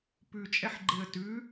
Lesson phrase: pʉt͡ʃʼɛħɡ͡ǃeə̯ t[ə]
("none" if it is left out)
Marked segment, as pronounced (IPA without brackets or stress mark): ʉ